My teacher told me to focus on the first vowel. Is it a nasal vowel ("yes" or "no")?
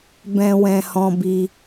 yes